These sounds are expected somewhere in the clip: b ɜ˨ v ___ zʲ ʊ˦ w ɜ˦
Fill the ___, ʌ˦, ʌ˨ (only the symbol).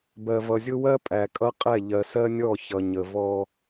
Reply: ʌ˨